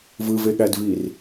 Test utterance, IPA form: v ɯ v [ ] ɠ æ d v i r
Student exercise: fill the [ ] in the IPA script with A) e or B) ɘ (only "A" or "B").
A